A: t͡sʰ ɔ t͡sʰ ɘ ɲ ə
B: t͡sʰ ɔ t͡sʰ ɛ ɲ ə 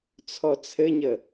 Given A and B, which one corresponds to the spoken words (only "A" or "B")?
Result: A